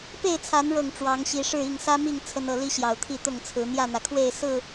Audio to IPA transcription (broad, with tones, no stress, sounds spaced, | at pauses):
p e˥˨ ɪ̯ t͡sʰ a˨˦ n ɻ ɤ˥˨ ŋ ʈ͡ʂ w ɑ˨˦ ŋ ɕ i˨˦ ʂ ɻ̩˥˨ i˥˨ ŋ s ä˦ m i˥˨ ŋ t͡sʰ ə˦ n ɤ˨˦ l i˦ ɕ j ɑ˨˩ ʊ̯ t̪ʰ i˥˨ t̪ ʊ˥˨ ŋ t͡sʰ ɹ̩˨˦ n̪ j ä˥˨ n̪ ä˩ kʰ w e˥˨ ɪ̯ s ɹ̩˥˨